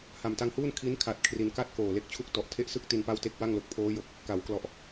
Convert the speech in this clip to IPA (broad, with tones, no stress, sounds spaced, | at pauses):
h a˨˩ m t a˧ ŋ h uː˥˩ n kʰ i˦˥ n kʰ a˨˩ t̚ kʰ r i˧ n k a˥˩ t̚ k oː˨˩ l e˦˥ k̚ t͡ɕʰ u˥˩ k̚ t ɔ˨˩ ʔ tʰ e˦˥ ʔ s ɯ˥˩ k̚ t i˧ n p a˥˩ w t e˥˩ k̚ w a˥˩ ŋ l o˨˩ k̚ pʰ oː˦˥ j o˨˩ k̚ | k a˩˦ w k l ɔ˨˩ ʔ